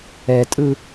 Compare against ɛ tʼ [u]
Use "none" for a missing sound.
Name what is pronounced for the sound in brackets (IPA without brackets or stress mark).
ɯ